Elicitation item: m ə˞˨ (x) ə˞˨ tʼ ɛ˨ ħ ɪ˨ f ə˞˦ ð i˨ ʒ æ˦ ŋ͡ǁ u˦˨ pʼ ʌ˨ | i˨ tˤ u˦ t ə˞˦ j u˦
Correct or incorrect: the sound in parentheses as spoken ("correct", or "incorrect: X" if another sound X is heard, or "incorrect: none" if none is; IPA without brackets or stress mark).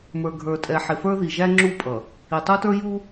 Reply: incorrect: ɡʱ